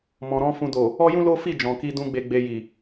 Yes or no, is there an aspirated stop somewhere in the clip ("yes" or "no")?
no